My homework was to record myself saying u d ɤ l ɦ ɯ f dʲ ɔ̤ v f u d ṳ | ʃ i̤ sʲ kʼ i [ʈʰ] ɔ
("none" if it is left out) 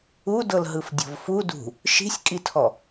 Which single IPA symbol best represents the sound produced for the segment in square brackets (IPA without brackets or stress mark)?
tʰ